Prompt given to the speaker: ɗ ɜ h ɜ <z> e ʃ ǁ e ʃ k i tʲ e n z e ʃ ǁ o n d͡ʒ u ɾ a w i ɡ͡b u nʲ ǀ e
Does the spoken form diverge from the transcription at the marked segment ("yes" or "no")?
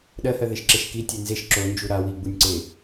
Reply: yes